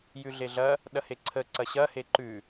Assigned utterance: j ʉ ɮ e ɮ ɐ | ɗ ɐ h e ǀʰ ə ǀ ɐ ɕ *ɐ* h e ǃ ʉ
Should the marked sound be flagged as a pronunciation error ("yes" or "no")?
no